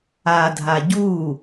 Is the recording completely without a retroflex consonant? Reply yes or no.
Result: yes